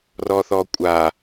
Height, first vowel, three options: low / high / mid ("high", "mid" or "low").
mid